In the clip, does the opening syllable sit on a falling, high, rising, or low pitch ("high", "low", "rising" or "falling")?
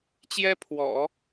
high